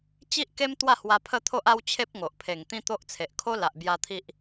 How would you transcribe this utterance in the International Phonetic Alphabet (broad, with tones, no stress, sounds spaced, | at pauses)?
t͡ɕ i˦ ʔ k e˦ m t̪ w a˥˧ h w a˧ pʰ ə˥˧ t̪ʰ o˦ ʔ a˦ w t͡ɕʰ e˦ p̚ ŋ o˨ ʔ pʰ e˨˩ ŋ t̪ ĩ˦ t̪ o˦ ʔ t͡sʰ e˨ ʔ kʰ o˦ l a˨ ʔ b j a˧ t̪ʰ i˦ ʔ